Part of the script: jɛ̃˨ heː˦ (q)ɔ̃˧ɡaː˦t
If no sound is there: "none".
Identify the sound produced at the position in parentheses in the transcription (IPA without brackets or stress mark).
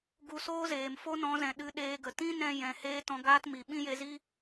t